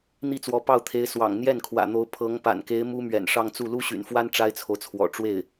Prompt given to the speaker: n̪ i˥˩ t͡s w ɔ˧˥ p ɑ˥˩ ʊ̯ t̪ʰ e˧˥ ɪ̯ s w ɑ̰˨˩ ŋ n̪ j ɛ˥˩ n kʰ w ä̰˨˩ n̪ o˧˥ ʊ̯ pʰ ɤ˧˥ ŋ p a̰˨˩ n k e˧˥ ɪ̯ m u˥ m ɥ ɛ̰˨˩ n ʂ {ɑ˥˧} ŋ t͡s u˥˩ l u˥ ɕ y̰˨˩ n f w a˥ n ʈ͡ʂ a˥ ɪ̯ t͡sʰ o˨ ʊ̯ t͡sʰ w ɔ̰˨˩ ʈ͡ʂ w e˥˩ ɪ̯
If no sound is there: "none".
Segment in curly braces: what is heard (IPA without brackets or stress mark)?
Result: ɑ˥˧